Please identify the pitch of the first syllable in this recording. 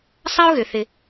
high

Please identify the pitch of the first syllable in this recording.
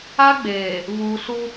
high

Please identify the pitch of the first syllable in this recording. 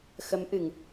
rising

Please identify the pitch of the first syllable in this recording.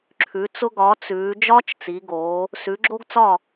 rising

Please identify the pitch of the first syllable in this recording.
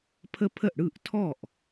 high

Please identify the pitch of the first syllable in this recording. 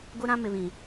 high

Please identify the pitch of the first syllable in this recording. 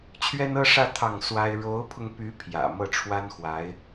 high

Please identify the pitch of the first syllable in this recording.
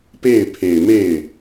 falling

